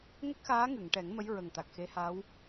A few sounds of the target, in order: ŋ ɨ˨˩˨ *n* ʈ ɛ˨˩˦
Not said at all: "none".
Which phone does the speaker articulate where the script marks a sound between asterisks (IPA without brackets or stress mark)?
ŋ